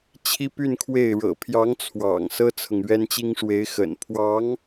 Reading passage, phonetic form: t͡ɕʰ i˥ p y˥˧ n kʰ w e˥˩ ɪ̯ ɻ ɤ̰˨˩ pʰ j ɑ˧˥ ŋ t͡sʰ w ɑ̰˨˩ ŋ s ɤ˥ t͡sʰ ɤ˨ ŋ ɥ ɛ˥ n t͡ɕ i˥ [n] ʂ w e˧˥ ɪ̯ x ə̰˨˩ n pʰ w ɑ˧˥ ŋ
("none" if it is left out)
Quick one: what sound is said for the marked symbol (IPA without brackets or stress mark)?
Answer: ŋ